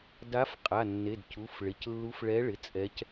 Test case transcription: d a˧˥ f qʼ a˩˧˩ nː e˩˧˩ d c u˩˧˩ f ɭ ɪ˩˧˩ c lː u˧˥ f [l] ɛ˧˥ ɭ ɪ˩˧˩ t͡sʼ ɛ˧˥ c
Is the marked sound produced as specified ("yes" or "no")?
no